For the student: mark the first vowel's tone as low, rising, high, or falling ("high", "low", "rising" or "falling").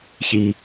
low